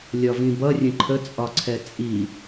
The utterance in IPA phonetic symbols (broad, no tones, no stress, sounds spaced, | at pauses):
lʲ ɒ v ĩ b ʌ rʲ ə̃ ǃʰ ə t͡sʼ ɒ ǀʰ ɛ t͡sʼ i